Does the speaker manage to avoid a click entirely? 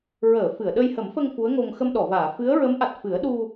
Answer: yes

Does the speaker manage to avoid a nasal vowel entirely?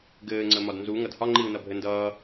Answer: yes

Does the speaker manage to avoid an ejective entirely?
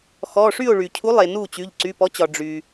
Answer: yes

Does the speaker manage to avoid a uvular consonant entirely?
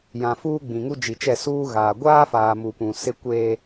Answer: yes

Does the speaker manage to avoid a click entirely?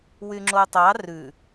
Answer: no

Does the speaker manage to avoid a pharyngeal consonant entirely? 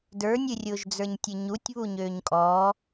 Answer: yes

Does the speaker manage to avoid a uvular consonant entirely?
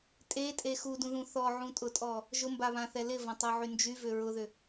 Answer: yes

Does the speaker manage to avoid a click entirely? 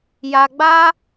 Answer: yes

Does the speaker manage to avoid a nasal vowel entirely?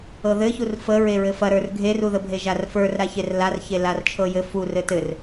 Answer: yes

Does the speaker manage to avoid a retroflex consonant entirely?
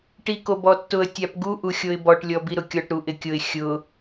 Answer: no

